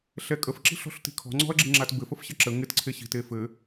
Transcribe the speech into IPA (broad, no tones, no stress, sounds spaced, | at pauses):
ɬ ɛ kʼ ə f ǁ i̤ ɬ ɔ̤ ɬ t i̤ kʰ ɔ̤ ŋ͡ǀ ɔ̤ ɐ̯ ɡ͡ǁ ɪ ŋ͡ǁ a t b ɘ f ə f ɕ ɘ ǁ ə ŋ ɪ t ǀʰ e ɕ i̤ t e f ɘ